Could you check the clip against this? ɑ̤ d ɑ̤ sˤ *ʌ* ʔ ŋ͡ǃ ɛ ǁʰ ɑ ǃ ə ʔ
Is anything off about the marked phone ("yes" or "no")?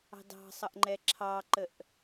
no